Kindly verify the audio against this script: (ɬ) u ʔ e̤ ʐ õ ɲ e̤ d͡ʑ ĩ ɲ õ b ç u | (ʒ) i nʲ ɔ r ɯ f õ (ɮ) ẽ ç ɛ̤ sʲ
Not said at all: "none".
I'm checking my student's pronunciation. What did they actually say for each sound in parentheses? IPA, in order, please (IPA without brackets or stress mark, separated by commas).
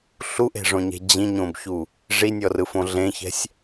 ɬ, ʐ, ɮ